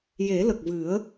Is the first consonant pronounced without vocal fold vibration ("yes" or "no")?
no